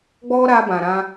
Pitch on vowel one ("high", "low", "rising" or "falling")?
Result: high